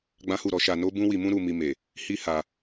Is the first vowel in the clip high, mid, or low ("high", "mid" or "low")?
low